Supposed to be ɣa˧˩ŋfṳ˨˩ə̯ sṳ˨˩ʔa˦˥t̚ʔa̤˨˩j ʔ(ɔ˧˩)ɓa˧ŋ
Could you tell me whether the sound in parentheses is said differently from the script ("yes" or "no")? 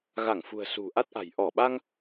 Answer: no